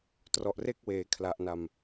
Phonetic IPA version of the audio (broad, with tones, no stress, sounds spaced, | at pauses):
t r ɔ˨˩ ʔ r e˥˩ k̚ w eː˩˦ kʰ l a˨˩ ʔ n a˨˩ m